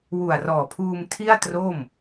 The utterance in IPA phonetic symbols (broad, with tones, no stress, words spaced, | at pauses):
wu˨˩a̯rɔː˨˩pʰuː˧m tʰi˥˩a̯tro˥˩m